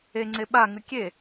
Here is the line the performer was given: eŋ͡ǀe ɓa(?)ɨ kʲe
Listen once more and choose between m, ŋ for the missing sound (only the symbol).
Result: ŋ